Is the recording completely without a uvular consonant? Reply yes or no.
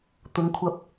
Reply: yes